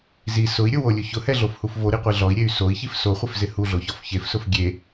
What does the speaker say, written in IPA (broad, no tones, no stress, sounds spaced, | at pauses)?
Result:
z i s ʊ i̯ ɾʲ ʊ w o lʲ ʊ ç ʊ h ɛ ɮ o f h u f v o ɾ i qʷ e ɮ ɔ i̯ ɾʲ e y̯ s o i̯ ç i f s o χʷ ɪ f z ɪ h u ɮ o ç ɔ f ç e f s ʊ f ɡʲ e